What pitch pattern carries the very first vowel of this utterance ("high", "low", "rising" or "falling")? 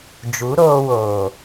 rising